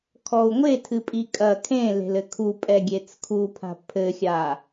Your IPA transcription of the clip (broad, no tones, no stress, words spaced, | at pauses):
kʰɔu̯ŋʷetʰɨpʼi kʼɐ kʰẽle̤l ɘkʰu pʼɛɡʲet͡skʰupʰa̤ pʰɘxʲa